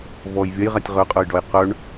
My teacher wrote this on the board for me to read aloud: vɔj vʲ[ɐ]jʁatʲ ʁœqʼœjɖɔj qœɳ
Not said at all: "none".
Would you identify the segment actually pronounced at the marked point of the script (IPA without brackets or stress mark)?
ɐ